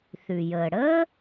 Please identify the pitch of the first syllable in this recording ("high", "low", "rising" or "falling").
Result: low